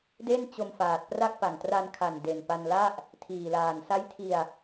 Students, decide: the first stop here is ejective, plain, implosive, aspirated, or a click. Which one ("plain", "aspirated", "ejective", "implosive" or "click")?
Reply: plain